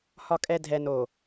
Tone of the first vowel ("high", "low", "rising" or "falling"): low